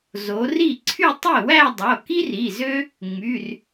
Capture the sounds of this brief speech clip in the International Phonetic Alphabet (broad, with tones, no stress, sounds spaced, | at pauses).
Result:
z o˩˧ r i˥˩ ǀʰ y˥˧ tˤ i˥˩ w æ˥˧ dˤ o˩˧˩ k i˥ r i˩˧˩ z ø˥ | ŋ͡m y˩˧˩ r